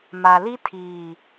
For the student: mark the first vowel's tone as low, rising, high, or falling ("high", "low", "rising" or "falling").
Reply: low